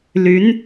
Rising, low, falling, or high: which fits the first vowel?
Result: rising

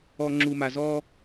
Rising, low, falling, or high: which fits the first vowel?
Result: low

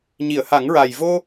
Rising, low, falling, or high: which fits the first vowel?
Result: low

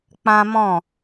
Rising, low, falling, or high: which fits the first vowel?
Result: high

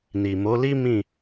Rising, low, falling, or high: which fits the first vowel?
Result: low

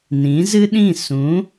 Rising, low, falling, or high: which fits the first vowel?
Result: rising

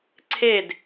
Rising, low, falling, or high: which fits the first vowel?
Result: falling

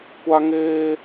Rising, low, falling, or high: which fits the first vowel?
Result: high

